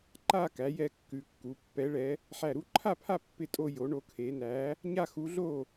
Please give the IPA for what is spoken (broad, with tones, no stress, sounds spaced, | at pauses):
ǃ a˥˧ k æ˧˥ j ɛ˥˧ kː ʉ˧˥ kː u˧˥ pː ɛ˧˥ ɭ ɛ˧˥ | ħ æ˥˧ ɾ u˧˥ ǃʰ a˥˧ pʰ a˥˧ pː ɪ˥˧ tʼ o˥˧ j o˧˥ ɳ o˧˥ kʰ e˧˥ n æ˧˥ | ɲ a˥˧ x u˧˥ ɮ o˥˧